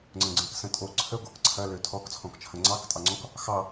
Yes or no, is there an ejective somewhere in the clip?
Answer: yes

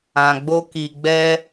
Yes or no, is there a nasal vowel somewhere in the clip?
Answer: yes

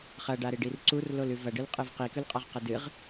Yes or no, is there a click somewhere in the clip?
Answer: yes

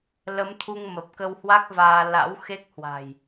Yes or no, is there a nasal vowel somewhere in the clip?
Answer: no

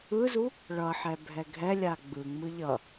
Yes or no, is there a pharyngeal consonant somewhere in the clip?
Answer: yes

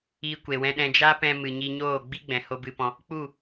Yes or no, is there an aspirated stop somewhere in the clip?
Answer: no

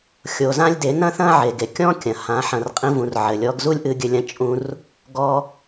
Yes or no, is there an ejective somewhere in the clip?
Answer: yes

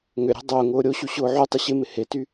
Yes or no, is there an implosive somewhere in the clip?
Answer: no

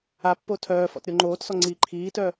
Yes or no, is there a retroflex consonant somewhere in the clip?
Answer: no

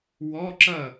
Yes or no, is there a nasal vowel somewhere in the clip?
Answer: no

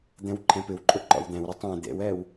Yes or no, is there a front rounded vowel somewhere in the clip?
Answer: no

